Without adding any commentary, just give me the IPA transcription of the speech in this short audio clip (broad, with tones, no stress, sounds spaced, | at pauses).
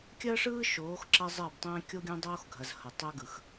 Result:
kʲ ɜ˦ ʂ ɯː˦ ʃ oː˨˦ x ǁ ɐ˦ zˤ ɜ˦˨ b tˤ ɛ̃ː˦ kʲ o˦ ɡʲ ɐ̃˦ dˤ oː˦ x ɡʱ ɐ˨ z h ɐ˨ tˤ ɛ˦ ɡ ɯ˨ x